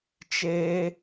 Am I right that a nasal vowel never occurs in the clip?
yes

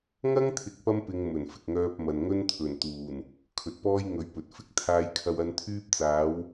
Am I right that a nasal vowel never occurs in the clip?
yes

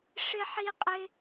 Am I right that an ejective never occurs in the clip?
no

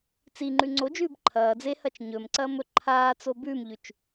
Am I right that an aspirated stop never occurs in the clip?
no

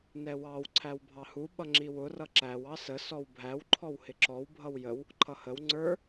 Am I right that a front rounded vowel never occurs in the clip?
yes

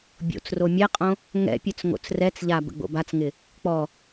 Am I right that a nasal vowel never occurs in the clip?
no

